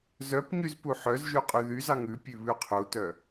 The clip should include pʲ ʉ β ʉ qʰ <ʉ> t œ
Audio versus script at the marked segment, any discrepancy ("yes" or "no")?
yes